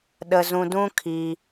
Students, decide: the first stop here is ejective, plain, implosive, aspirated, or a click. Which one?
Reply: implosive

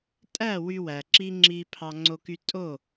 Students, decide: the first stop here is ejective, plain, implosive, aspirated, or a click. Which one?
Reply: ejective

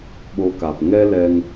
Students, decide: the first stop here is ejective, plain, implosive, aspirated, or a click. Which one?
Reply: implosive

